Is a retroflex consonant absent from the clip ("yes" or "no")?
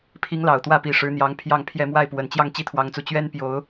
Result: no